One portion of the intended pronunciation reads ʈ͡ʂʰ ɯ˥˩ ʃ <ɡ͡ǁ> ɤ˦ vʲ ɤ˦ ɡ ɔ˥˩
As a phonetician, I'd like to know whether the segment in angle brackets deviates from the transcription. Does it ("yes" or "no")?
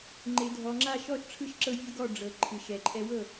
yes